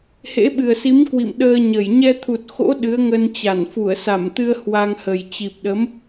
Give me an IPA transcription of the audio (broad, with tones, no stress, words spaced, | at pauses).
hḛ˧˥ɓɨ˨˩ə̯si˨˦m kwḭ˧˨mɗəː˧ɲə˧˩j ɲɛ˧t̪ʰu˨˩t̚xo̰˧˥ ɗɨ˨˦ə̯ŋə˧nt͡ɕa˧˩n fu˧˩ə̯sa˧˩mt̪ɨ˧ə̯ hwa˧ŋhə˨˩j t͡ɕi˨˩p̚ɗə˨˦m